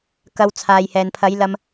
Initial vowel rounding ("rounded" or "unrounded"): unrounded